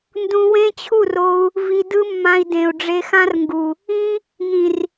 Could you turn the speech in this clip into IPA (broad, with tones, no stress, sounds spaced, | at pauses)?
n d ũ˧ w ẽ˦ t͡ɕʰ u˦˨ r o˧ u̯ | v i˧ d ɯ˦ mː ã˧ i̯ d ẽ˨ u̯ ɖ͡ʐ e˧ x ã˦ r ŋ ɡ u˨ | ĩ˦ | ŋ ĩ˨ r